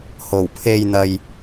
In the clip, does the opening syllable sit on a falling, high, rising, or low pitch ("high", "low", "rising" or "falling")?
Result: low